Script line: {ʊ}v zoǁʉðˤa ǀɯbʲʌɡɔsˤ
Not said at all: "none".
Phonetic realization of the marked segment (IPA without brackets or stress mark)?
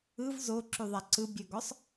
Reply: ɯ